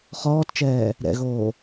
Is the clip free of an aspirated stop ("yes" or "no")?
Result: yes